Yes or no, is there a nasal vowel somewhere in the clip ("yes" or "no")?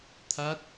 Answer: no